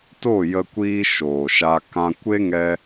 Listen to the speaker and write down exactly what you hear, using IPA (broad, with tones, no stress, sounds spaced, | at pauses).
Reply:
t o˦˨ j ə˧ kʷ iː˧ ʃ oː˨ ʃ a˧ k ã˧ kʷ e˦ ŋ ɛ˧